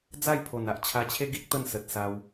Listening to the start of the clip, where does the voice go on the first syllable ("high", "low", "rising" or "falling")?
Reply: falling